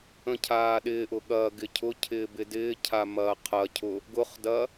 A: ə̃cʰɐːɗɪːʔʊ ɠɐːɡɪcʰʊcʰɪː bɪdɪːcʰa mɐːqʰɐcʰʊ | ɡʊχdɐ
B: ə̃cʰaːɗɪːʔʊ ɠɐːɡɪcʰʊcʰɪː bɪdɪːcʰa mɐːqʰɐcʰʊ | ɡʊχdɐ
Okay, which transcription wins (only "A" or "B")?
B